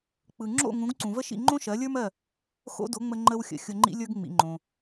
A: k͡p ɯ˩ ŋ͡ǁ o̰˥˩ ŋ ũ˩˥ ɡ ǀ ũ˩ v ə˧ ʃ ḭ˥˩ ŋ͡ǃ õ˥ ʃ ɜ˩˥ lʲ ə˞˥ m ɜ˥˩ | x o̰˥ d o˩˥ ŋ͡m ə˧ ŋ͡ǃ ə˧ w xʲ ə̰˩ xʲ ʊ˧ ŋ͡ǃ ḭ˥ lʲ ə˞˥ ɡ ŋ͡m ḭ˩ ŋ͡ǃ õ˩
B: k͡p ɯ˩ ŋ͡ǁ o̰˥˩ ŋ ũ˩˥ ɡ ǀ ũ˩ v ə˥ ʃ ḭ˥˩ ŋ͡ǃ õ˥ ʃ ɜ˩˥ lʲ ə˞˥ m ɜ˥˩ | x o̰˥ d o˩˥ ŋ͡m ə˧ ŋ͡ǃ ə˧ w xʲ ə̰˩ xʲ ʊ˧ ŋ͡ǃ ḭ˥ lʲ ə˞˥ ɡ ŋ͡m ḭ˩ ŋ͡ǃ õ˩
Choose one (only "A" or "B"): B